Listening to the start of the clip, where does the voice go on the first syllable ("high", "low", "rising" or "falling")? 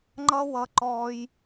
high